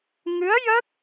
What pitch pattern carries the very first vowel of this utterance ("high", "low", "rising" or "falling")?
rising